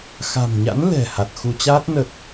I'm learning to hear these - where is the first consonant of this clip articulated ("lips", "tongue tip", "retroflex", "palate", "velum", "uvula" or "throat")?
velum